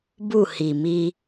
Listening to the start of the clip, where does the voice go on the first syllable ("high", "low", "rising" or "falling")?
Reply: falling